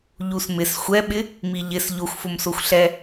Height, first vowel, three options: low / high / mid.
high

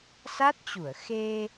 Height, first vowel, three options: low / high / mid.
low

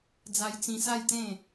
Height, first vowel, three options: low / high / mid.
low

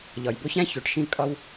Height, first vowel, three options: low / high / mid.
low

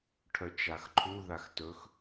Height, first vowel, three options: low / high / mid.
mid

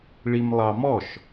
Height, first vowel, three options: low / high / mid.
high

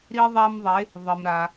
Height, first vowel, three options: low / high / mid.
high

